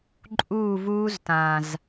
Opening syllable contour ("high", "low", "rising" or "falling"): falling